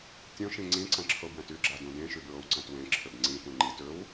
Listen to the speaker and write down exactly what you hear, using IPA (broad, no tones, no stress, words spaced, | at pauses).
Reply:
tʲõʃĩ ŋ͡ǀĩǀɐ̃ǁʰobjɐ̃t ʉɡ͡ǁadũ dẽʃʉbɹowǀɐ̃t wẽǁʰɵb ŋ͡ǀĩtũ ŋ͡ǃit ɵw